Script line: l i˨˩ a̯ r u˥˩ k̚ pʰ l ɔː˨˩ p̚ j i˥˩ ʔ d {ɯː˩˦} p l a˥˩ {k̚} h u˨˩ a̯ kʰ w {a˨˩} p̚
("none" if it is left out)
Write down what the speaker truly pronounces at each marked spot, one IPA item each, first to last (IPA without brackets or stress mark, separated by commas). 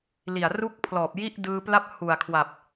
ɯː˧, p̚, a˨˩